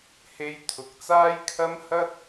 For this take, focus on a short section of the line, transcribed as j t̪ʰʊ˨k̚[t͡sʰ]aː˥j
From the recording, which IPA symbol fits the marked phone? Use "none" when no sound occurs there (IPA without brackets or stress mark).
t͡s